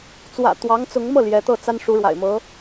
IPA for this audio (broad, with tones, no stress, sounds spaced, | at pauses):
t͡s w ä̰˨˩ t̪ w ɑ˧˥ ŋ t͡s ʊ˧˥ ŋ m ɤ˥˩ l j ɛ˧˥ t̪ ɤ˥˩ t͡s a˥ n ʂ u˧˥ ɻ w a̰˨˩ ɪ̯ m ɤ˧˥